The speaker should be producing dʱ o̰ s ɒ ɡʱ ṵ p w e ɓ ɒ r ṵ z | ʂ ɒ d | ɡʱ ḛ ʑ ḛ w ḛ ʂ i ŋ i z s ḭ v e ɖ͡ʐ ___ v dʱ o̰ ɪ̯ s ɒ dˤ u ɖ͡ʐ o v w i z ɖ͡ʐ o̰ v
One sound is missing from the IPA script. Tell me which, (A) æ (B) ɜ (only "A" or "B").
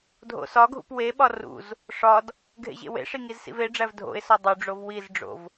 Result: A